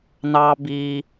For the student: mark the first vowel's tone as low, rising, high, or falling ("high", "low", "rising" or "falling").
high